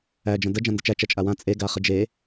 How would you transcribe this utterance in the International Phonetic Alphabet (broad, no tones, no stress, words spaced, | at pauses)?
æ d͡ʒə̃də d͡ʒãndət͡ʃæ t͡ʃæt͡ʃʼawã t͡sʼe ɡaχəd͡ʒe